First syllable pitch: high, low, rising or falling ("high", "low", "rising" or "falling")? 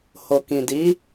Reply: low